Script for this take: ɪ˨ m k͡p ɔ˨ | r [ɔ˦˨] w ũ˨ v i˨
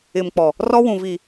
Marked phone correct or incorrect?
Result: incorrect